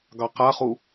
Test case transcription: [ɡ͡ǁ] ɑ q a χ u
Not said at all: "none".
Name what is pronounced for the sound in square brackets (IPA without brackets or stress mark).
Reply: ɡ